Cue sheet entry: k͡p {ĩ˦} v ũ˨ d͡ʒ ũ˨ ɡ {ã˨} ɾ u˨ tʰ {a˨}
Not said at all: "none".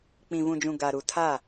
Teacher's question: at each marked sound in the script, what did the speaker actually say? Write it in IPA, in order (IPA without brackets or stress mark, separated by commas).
ĩ˨, a˨, a˦˨